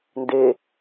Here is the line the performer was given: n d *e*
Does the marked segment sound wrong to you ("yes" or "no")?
no